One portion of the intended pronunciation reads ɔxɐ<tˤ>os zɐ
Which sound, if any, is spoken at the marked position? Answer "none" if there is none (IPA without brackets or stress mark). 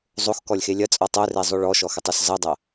tˤ